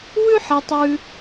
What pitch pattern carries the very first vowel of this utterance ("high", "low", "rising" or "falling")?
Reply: high